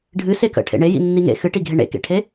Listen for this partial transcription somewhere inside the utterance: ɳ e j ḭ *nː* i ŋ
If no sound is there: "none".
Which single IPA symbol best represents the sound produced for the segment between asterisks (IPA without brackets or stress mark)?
nː